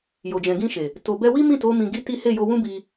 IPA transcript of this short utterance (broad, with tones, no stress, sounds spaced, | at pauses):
j o˨ d͡ʒ ɛ̃˨ ɡ ĩ˧ ʃ e˨ | t o˨ b ɛ˧ w i˦ m ĩ˦˨ t o˨˦ m ĩ˧ ɡ i˦ t i˦ h e˦˨ j o˧ w ũ˦ b i˧